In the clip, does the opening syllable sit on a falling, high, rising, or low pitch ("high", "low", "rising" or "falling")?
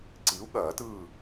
rising